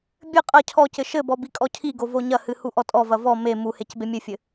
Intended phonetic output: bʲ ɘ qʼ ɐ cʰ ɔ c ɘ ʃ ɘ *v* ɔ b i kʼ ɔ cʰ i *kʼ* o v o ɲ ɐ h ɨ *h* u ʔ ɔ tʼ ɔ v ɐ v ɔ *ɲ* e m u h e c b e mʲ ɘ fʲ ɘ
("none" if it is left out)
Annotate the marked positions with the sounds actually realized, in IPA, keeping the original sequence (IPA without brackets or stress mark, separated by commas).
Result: b, ɡ, h, m